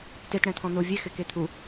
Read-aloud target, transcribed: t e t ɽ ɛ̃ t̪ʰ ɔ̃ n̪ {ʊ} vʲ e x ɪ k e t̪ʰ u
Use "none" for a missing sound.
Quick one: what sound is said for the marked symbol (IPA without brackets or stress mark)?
ʊ